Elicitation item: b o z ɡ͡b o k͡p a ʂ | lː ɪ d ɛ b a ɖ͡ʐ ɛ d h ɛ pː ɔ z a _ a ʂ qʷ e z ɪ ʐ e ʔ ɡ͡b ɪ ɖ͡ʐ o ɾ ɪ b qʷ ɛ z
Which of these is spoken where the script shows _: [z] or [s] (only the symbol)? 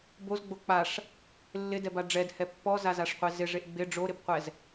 z